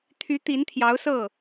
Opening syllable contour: rising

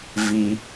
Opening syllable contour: high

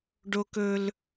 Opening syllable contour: high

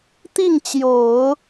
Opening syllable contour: falling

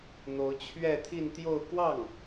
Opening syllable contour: rising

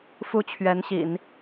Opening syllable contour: high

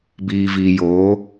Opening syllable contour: low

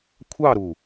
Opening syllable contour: falling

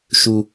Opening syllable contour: low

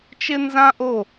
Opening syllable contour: high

